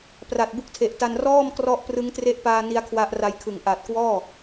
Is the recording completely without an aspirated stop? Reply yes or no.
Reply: no